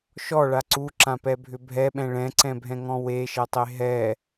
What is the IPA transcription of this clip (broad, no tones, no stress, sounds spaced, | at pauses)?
ʃ ɔ ɭ a ǀ u ǁ ã p ɛ bʱ ʏ bʱ ɛ ɓ ɛ̃ ɭ ɛ̃ ǀ ɛ̃ bʱ ɛ̃ ŋ ɔ̃ w e ʃ ɛ tˤ e ɦ ɛ